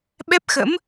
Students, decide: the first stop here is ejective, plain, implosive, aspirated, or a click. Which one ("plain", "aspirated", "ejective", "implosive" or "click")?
implosive